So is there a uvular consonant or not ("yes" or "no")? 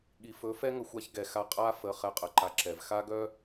yes